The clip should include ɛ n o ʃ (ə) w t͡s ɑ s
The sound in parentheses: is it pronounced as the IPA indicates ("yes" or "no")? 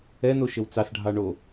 yes